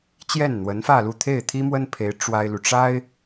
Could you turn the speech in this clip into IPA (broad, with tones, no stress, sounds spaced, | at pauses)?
t͡ɕ j ɛ˥˩ n n̪ w ə˧˥ n f ä˥˧ l u˥˧ t̪ʰ e˥˩ ɪ̯ t̪ʰ i˥ m w ə˥ n pʰ e˧˥ ɪ̯ ʈ͡ʂ w a˥ ɪ̯ l u˨ ʈ͡ʂ a˥ ɪ̯